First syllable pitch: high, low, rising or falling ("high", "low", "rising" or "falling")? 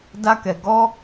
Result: high